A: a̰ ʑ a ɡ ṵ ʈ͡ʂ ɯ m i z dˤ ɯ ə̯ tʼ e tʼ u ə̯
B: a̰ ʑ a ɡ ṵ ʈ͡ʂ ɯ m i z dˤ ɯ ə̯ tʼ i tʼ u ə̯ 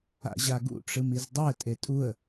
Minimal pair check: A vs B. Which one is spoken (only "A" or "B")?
A